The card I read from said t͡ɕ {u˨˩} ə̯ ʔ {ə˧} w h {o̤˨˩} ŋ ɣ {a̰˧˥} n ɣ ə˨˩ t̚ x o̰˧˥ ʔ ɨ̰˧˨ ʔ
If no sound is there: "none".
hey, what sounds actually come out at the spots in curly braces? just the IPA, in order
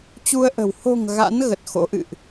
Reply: u˧, ə̤˨˩, o̤˨˩, a̰˧˥

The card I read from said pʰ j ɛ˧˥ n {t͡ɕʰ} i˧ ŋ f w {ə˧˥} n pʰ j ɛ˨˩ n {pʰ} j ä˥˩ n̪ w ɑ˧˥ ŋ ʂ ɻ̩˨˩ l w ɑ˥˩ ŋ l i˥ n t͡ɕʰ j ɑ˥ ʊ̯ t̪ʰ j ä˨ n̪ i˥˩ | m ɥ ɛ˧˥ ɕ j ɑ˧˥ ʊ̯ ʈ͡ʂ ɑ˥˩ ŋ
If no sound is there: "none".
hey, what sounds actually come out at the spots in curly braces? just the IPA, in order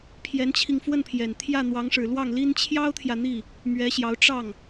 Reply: t͡ɕʰ, ə˥˩, t̪ʰ

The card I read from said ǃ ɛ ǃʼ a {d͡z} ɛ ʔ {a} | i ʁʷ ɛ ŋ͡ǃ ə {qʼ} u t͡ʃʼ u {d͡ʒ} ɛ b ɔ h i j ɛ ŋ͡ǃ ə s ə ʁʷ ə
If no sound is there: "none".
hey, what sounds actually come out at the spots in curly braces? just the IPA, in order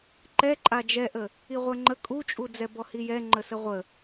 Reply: d͡ʒ, ə, kʼ, d͡z

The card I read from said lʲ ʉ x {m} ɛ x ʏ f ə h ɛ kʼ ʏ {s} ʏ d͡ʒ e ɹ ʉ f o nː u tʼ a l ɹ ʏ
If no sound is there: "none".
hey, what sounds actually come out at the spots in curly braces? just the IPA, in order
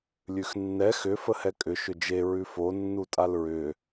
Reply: nː, ʃ

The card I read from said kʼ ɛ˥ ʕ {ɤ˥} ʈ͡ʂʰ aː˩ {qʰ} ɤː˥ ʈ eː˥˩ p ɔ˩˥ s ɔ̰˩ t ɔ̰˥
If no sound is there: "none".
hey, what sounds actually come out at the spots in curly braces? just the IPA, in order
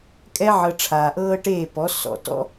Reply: ɤ˧, ʔ

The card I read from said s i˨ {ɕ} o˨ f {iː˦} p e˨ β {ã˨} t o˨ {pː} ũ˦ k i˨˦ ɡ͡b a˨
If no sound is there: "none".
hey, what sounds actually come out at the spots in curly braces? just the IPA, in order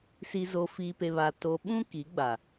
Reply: z, iː˨, a˨, ɓ

